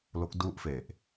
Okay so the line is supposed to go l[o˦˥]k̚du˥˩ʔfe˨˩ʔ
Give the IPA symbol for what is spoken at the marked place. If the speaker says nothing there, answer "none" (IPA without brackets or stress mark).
o˦˥